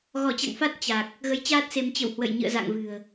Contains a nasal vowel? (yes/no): no